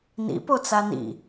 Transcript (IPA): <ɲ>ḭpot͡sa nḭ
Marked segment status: incorrect: n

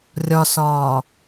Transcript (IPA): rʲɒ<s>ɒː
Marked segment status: correct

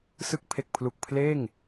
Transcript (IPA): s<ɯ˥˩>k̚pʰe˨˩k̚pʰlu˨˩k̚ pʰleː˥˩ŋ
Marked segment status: incorrect: ɯ˦˥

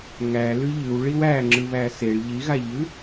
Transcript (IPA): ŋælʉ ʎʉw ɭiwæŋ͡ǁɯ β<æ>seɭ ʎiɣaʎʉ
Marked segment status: correct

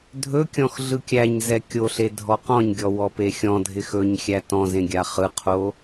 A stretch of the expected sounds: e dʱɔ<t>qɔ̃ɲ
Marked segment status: incorrect: none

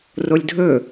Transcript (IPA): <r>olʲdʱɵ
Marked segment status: correct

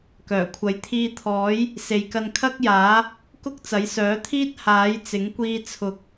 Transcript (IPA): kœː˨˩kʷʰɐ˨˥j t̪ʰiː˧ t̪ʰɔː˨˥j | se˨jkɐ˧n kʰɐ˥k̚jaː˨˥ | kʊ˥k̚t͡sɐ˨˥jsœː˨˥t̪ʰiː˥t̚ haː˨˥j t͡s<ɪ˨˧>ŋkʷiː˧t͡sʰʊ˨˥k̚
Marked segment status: incorrect: ɪ˨˥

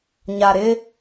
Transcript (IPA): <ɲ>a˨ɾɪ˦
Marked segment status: correct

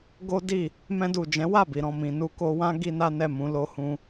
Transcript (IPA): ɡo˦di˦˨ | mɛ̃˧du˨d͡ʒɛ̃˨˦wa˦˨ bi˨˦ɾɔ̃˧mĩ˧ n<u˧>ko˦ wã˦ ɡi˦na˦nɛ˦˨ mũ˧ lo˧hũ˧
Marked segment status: incorrect: u˦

